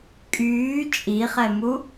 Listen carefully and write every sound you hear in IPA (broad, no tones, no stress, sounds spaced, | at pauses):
kʼ yː t͡ʃʼ i χ ɛ m u